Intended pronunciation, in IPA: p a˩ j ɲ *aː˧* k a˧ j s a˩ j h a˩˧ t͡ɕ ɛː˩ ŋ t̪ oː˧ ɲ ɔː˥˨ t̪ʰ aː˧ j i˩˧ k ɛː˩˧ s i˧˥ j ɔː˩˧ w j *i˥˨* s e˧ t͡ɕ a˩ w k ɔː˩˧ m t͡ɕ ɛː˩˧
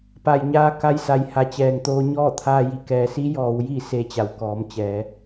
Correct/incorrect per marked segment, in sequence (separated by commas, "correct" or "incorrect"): correct, correct